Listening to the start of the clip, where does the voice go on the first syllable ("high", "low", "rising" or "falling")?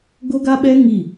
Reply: high